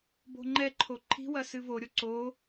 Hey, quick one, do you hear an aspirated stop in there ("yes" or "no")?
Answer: yes